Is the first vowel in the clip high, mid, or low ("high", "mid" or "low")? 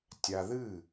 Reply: low